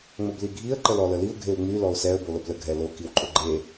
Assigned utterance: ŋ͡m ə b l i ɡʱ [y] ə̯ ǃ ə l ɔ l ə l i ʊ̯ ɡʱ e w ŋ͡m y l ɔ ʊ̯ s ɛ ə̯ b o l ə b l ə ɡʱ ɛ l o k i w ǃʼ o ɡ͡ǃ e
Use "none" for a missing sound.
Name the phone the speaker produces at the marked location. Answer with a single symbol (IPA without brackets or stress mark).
i